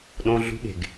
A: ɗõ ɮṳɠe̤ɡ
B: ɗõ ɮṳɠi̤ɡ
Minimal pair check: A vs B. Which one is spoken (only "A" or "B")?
A